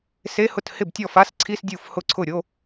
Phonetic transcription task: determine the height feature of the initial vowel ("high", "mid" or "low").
mid